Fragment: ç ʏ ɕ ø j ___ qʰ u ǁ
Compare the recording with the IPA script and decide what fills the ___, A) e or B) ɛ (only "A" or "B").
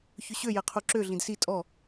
B